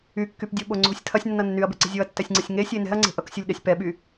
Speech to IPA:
y kː y p dʲ o ɓ o ŋ͡ǀ o̤ sʲ tʰ ɐ sʲ nː ʌ nː y ɐ̯ b e̤ ǀ i̤ zʲ o ɐ̯ tː ɛ sʲ ŋ͡ǀ i sʲ ŋ e sʲ e n ɛ̤ ɐ̯ ŋ͡ǀ e̤ ʔ ʌ k sʲ o lʲ ɗ ɛ sʲ p ɛ ɓ y

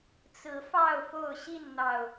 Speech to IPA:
t͡s ɹ̩˨˦ f ɑ˥˨ ʊ̯ f o˥˨ ʊ̯ ɕ i˥˨ n n̪ ɑ˨˩ ʊ̯

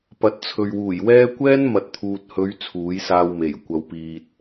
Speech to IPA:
p ɐ˨˥ t̚ t͡sʰ ɵ˨ ɥ w uː˨˩ j w ɛː˥ kʷ ɛː˥ n m ɐ˨ t̚ t̪ʰ uː˨ t̚ h ɵ˨˧ ɥ t͡sʰ uː˨˥ j s aː˧ w m e˨˩ j kʷ ɐ˨ w p iː˨ t̚

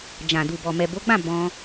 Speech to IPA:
d͡ʒ ã˨ d u˨ b ɔ˨ m ɛ˨ b o˨˦ ɡ͡b ã˦˨ b ɔ̃˧

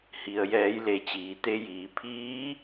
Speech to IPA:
h i˩ ə̯ j ɛː˩˧ j l e˩˧ t͡ɕ iː˩˧ t̪ e˧ j iː˩˧ pʰ iː˧˥

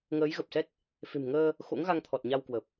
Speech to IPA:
ŋ əː˨˦ j ɣ ə˨˩ p̚ s ɛ˦˥ t̚ | f e̤˨˩ m ŋ əː˧ | x o̰˧˥ ŋ ɣ a˧ ŋ t̪ʰ ɔ˨˩ t̚ ɲ a˧ w k w ə˨˩ p̚

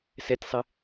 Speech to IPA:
s ɛ tʲ sˤ ɪ

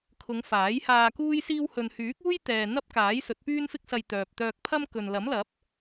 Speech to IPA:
kʰ ʊ˨˧ ŋ f aː˨˥ j h aː˧ k uː˥ j s iː˥ w h ɵ˧ n h yː˨˥ k̚ uː˥ j t̪ ɛː˨ n̪ ɐ˥ p̚ k aː˨˥ j s ɵ˨˥ t̚ p yː˥ n f ɪ˥ k̚ s ɐ˧ j t̪ œː˨ p̚ t̪ œː˧ k̚ pʰ ɐ˥ m k ɵ˨ n l ɐ˨˥ m l ɐ˨˥ p̚

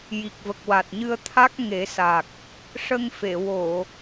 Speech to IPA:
j i˨˩ k̚ v ə˨˩ k̚ w a˨˩ t̚ ɲ ɨ˧ ə̯ t̪ʰ a˦˥ k̚ ŋ e˨˩˦ s a˨˩ k̚ | ʂ ə˧ ŋ f e˨˩˨ w o˨˩˨

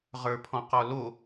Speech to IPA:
ʁ ə˞ pʰ ɔ̃ q ɔ l o

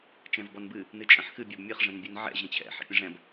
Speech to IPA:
t͡ʃ ɛ̃ v b ɔ n b ɨ | n ɨ t͡ʃʼ ə̃ ħ x ɨ bʲ o b mʲ ɨ χ ʐ ɛ̃ n bʲ ɨ n ʕ ɛ̰ ʑ ə̃ t͡ɕʰ ɛ̰ ħ ɛ̰ pʲ ə̃ ʐ ɛ̃ b

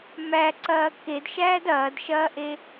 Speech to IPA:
m æ ǀ ɐː k e d ʃ æː d ɐː d ʃ ɐː ʔ e

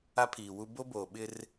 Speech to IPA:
a˦ pʰ iː˨ w u˦ b o˦ b oː˨ ɓ ɪ˦ r

